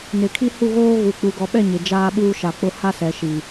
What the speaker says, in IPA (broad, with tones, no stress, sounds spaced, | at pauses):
n ɪ˨ kʰ i˦ h u˦˨ ɣ oː˦ ɣ u˨ k͡p u˨ ɡ ɔ˨ ɓ ɛ˦˨ ɲ ɪ˨ d͡ʒ aː˦ ɓ uː˦ ʃ a˨ k͡p ʊ˦ h a˦ s ɛ˨ ʃ i˨